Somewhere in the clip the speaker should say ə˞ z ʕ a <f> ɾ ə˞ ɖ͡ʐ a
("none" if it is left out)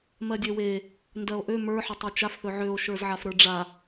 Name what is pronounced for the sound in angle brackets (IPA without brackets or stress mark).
f